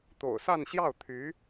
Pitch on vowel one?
low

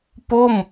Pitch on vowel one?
falling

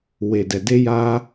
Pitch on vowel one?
low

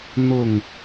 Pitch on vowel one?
falling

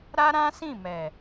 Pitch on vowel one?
high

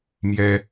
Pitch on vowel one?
high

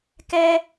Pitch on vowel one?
high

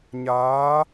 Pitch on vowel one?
rising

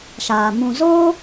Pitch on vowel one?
low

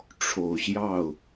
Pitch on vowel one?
low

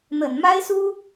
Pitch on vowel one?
low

